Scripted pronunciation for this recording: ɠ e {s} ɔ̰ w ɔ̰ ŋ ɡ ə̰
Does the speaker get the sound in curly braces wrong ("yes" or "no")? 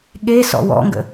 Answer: no